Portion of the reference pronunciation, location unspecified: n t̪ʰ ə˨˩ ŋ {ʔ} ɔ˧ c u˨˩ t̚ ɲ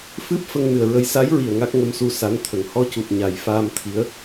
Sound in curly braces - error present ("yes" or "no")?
yes